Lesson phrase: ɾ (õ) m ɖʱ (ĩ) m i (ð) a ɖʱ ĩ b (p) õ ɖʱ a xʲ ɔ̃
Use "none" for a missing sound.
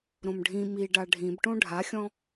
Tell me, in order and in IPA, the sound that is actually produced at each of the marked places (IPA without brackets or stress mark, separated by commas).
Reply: õ, ĩ, ɖ, ʈ